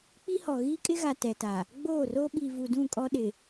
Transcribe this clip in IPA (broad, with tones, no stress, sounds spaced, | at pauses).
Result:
k͡p i˦ h ɔ˨ ɣ iː˦ kʼ ɪ˦ ɣ a˨ t ɛ˨ t a˨ | ɡ͡b oː˦˨ r oː˦ ɓ iː˨ v u˨ d ũ˦˨ kʼ ɔ˦ ɗ ɪ˨